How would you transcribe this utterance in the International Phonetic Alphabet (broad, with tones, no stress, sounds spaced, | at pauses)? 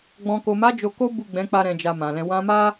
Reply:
ɡ͡b ɔ̃˨ k o˨ m a˨˦ d͡ʒ o˧ k o˦ b u˦˨ ɡ͡b ɛ̃˨˦ k͡p a˧ ɾ ɛ̃˧ d͡ʒ a˧ m ã˨ l ɛ̃˧ w ã˧ m a˦